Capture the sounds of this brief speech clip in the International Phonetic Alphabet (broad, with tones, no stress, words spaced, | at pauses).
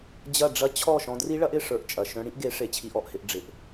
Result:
d͡ʑɐ˦˨ ɖ͡ʐɐ˦ t͡ɕʰɔ˦˨ ʃɔ̃˧dri˦ɭɐ˦ʔɪ˦˨ ʂə˞˧ʔt͡ʃʼɐ˨ ʃœ̃˧ɽĩ˦ʔɡe˨˦ ʂe˨t͡ɕʰi˧ʔɔ˨ʔhɪ˧ʔ ɖ͡ʐɪ˧ʔ